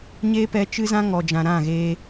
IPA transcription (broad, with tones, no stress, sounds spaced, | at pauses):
ɲ eː˦ p ɛ˧ t͡ʃ ɨ˦ z ã˦ ŋ ɔ˨ d͡ʒ ã˨ ɾ ã˦˨ ɣ e˧